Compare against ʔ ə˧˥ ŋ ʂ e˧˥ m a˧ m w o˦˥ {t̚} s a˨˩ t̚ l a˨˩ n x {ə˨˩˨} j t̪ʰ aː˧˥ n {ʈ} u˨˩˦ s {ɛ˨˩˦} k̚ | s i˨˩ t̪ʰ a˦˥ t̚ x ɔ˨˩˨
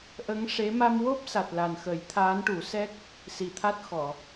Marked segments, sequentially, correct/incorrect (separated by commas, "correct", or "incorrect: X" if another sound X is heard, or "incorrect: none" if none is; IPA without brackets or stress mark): incorrect: p̚, incorrect: ə˨˩˦, correct, incorrect: ɛ˦˥